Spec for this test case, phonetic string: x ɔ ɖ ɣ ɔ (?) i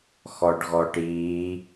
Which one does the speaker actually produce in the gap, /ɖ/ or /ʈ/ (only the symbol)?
ʈ